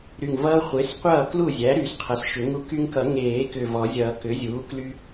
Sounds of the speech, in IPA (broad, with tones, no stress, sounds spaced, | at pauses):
ɾ y˨˩ ŋ v ʌː˦ χʷ e˩˥ s qʷ ʌː˥˩ k l u˥˩ zʲ æ˩˥ ɾ y˨˩˦ s qʰ ʌ˩˥ s ʃ ʏ˨˩˦ ŋ u˦ k y˦ ŋ k ʌ˨˩˦ ŋ eː˨˩˦ k ʏ˨˩ v ɔ˨˩˦ zʲ ʌː˨˩˦ k ʏ˩˥ zʲ uː˩˥ k l y˦